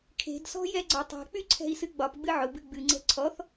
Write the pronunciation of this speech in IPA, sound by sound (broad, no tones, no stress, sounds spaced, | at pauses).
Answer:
kʰ e̤ d s ɔ̤ j ɛ ɡ͡ǀ ɒ tˤ e̤ k͡p y ǀʰ ɛ̤ i̯ s ɨ ɡ͡b ɒ p ɡ͡b ɨ ʕ ʊ b ɨ ɡ͡b ɨ ŋ͡ǀ ɛ̤ ǀʰ ɔ θ